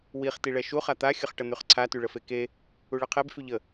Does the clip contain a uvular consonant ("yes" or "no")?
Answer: yes